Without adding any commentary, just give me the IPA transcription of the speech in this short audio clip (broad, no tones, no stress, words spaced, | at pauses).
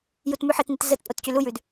jutmʉħɘtnit zət pʼotcylujʉd